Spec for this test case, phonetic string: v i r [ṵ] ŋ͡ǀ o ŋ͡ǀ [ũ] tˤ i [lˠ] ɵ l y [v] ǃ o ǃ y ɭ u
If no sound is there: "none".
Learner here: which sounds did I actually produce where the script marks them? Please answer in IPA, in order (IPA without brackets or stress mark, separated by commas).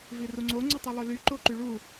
u, u, lˠ, none